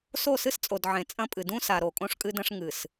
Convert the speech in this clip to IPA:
s o˦˨ s ɨ˦ s t͡sʼ o˨ d ʕ ẽ˨ t͡sʼ ɐ̃˦ pʼ ɨ˨ d ũ˦ s a˨ ɾ o˨ kʼ õ˦ ʂ kʼ ɨ˦ d ɐ̃˦ ʂ ŋ ɨ˨ s

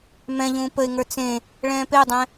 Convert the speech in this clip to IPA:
m ɛ̃ ʎ ũː p ə ɪ̯ ŋ ə˞ t͡s ẽ | ɭ ɛ̃ː p e dˤ ɛ̃

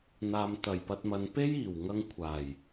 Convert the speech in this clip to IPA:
n̪ aː˨ m t̪ ɐ˨˩ j p ɐ˧ t̚ m ɐ˨˧ n p e˥ j iː˨˩ w ŋ ɐ˧ ŋ kʷʰ aː˨˩ j

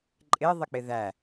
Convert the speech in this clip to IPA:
ǃʼ ɪ ðˤ ɪ k͡p ɪ ð æ

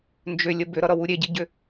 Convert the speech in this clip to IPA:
n d͡ʒ ʏ lʲ ə b ʏ ɾ ʌ ɾ ʌ w u ɾʲ e ɟ i ɟ ʏ

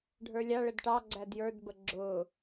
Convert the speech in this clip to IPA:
ɖʱ ə˞ lʲ ɑ ɭ ə d ʈ ɑ ɡ͡ǀ æ d j ə˞ d b ə ɡ͡ǁ ʊː

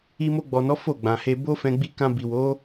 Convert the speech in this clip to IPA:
i˧ m o˧ ɡ͡b ɔ˨ n ɔ˨˦ f o˦˨ ɡ͡b ã˨ h e˧ b o˦ f ɛ̃˧ ɡ͡b i˧ k ã˧ b i˨ w o˨˦

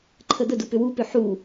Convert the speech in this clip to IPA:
ǃʰ ə d̪ ə d u p ʏ w u p ʏ ħ u

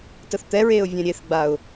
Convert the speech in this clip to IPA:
t ə θ t̪ ɛ ɹ eː ʊ̯ vʲ ɛ̃ ɾʲ e θ ɡ͡b a ʊ̯

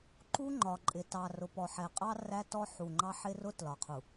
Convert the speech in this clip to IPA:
ǃ u˦ ŋ͡ǃ ɒ˨ ǃʼ ɪ˨ t ɑ˨ r ʊ˨ p ɔ˨ ħ ɛ˨ qʼ ɑ˦ r æ˦ t ɔ˦ ħ u˨ ŋ͡ǃ ɑ˦ ħ ɪ˦ r ʊ˦ t l ɒ˨ qʰ u˨

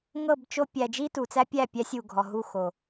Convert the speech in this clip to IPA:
ŋ ɤ˦˨ b t͡ʃ o˦ pʲ æ˨ d͡ʒ i˦ t u˨ t͡s æ˦ pʲ æ˦˨ pʲ æ˦ sʲ u˨ ɡʱ ɔ˨ ɦ u˦˨ x o˨

